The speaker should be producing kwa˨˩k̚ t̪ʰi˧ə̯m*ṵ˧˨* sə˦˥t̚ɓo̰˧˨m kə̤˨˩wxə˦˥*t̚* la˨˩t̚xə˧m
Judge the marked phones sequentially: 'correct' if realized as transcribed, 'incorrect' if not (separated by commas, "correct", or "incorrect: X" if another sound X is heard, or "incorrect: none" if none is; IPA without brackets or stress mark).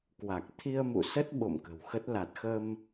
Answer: correct, correct